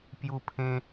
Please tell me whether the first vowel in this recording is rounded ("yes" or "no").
yes